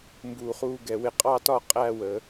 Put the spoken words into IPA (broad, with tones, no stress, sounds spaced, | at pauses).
m b uː˧˩ χ uː˥˧ ɡ ɛ˧˩ w ɪ˧˩ qʼ ɑ˥˧ t ɒ˥˧ qʼ æ˥˧ w ə˩˧